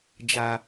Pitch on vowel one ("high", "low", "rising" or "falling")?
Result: low